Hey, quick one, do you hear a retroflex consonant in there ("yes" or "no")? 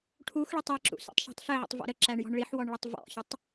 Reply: yes